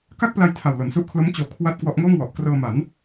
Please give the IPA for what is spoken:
k a˥˩ k̚ p l a˧ j tʰ a˨˩ w l o˩˦ n s u˦˥ ʔ kʰ l o˦˥ m t͡ɕ oː˩˦ kʰ w a˥˩ t̚ k w ɔ˦˥ ʔ ŋ oː˥˩ ŋ w ɔ˨˩ ʔ k r ɤː˧ m a˩˦ n

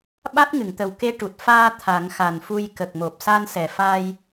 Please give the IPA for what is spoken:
ɓ a˦˥ t̚ ŋ ɨ˨˩˨ ŋ t̪ ə˨˩ w k e˧˥ ʈ u˨˩ t̚ f aː˧ t̪ʰ a˨˩˦ ŋ x a˨˩ n f u˧ j k ə˨˩ k̚ m o˨˩ p̚ s a˧ n s ɛ˨˩ f a˧ j

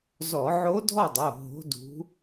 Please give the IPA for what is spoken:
z ɔ˧˩˧ ʕ o˧˥ dʱ ɔ˥˨ dˤ o˩˧˩ ɦ o̤˧˥ d ṳ˧˥

